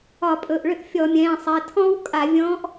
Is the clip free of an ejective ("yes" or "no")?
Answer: no